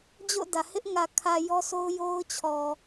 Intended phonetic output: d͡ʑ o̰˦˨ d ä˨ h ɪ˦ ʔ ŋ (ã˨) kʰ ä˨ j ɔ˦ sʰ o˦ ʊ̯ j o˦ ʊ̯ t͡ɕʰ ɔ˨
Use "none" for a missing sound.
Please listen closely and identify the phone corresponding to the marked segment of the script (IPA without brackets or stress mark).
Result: ä˨